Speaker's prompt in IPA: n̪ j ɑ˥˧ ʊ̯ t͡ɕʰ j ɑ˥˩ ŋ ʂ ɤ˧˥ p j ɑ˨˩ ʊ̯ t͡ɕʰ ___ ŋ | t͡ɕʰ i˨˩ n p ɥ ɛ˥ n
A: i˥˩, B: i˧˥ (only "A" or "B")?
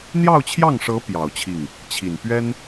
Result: A